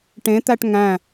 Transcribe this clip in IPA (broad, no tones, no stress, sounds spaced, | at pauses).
ʈ ẽ t̪ æ ʈ ŋ æ̃